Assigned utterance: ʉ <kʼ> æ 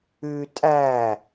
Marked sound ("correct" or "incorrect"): incorrect